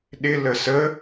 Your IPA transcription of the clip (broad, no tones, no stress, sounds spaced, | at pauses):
ɗ ɪ l ə s ə